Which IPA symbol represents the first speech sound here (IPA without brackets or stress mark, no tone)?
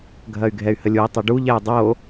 ɡʱ